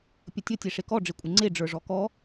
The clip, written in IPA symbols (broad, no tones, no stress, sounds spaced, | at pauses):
pʲ ə tʲ ə tʲ e ʂ e k ɔ ɖ͡ʐ ɪ kʷʼ ɪ ŋ͡ǀ e ɖ͡ʐ ə˞ ʐ ɔ k ɔ